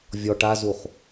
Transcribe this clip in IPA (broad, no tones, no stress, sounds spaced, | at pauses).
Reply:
vʲ ɔ ʈ a z u χ